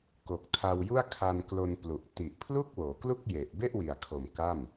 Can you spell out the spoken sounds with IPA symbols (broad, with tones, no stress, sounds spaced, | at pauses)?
k o˨˩ k̚ tʰ a˧ w j u˥˩ a̯ kʰ a˧ n k l o˧ n p l u˨˩ ʔ t i˨˩ ʔ pʰ l u˥˩ k̚ w oː˩˦ k l u˥˩ k̚ j e˨˩ ʔ b e˥˩ ʔ w i˨˩ a̯ kʰ o˨˩ m k a˥˩ m